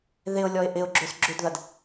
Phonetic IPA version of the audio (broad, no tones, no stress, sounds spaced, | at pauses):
ð ɪ ʊ̯ lʲ ɔ ɪ̯ ʔ ɪ ʊ̯ ɡ͡ǁ ø s ɡ͡ǁ ʏ d ð ɐ d